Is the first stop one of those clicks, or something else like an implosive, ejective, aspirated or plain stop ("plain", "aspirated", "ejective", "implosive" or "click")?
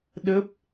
implosive